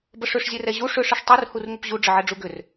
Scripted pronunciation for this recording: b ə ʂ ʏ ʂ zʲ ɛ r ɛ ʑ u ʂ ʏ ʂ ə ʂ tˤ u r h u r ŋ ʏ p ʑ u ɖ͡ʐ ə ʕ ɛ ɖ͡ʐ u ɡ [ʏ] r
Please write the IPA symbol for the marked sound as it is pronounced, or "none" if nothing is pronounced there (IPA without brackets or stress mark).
ʏ